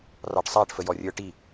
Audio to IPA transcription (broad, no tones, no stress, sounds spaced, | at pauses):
r ɑ ʈ sˤ æ ʈ f ə j ɔ rʲ ə˞ ʈ i